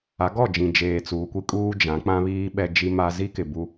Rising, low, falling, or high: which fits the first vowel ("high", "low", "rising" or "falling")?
rising